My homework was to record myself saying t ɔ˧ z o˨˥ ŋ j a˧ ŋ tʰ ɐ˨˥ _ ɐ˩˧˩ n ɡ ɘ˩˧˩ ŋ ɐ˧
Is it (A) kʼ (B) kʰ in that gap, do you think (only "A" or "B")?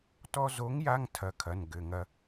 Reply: B